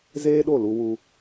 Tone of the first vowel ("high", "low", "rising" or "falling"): high